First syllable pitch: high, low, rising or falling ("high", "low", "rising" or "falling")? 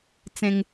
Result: high